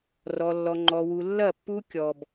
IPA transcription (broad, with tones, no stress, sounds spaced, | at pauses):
r ɔ˦ lː ɔ˦ ŋ͡ǃ ɔ˦ w u˦ lː ɐ˦˨ pː u˦ kʲ ɔ˨ b